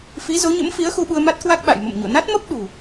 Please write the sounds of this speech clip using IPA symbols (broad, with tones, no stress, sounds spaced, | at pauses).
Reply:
f i˨˦ z o˨˦ ɲ ə̰˧˥ m f i˨˦ ə̯ x u˧ ɓ u˧ ə̯ m a˦˥ t̚ k w a˦˥ k̚ ɓ a̰˧˨ j m ə̰˧˨ m ɲ o̰˧˨ n a˦˥ t̚ m ə˦˥ p̚ ɗ ṳ˨˩